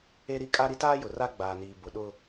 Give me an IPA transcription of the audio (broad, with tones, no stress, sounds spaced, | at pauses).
e˦ ɾ i˦ kʼ a˦ ɾ i˦ t aː˦ j ʊ˨ r a˦ ɡ͡b aː˨ n iː˨ b ʊ˨ ɗ ʊ˦